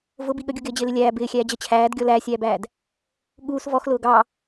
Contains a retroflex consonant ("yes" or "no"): no